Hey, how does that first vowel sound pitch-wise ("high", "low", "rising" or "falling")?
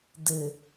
low